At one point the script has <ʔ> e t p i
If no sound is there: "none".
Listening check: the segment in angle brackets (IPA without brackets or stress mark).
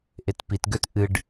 ʔ